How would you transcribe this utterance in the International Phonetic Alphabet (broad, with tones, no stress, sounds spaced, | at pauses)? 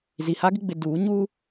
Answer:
z i˨ h a˦ ɡ ɪ˦ ɡ͡b ɪ˨ d uː˨˦ ɲ uː˦